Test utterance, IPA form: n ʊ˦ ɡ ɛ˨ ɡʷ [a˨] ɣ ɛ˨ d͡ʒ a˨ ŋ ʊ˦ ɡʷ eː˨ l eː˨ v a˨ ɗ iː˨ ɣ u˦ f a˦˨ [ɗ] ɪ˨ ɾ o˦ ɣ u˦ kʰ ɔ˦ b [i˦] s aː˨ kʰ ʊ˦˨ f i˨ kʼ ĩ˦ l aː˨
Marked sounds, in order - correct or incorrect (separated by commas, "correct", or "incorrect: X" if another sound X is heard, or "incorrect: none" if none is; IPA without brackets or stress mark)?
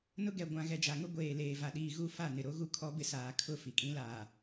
incorrect: ã˨, incorrect: n, incorrect: ɪ˦